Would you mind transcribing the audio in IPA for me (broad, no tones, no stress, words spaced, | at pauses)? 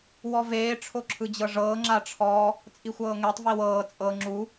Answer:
wɔveː ʈ͡ʂʰoǁʰɯd͡ʑɤʐɤː ŋ͡ǁaʈ͡ʂʰɔ | t͡sʼixʷɤːŋetˤ viwɤː t͡sʼɤ ŋ͡ǁu